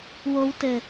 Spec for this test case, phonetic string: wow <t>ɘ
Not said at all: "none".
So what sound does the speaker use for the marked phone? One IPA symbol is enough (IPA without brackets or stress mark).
t